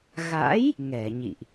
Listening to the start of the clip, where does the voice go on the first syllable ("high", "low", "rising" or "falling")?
rising